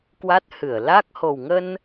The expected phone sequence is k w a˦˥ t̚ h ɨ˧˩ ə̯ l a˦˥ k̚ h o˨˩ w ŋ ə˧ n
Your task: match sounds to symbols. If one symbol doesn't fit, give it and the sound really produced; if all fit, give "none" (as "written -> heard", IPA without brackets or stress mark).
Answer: none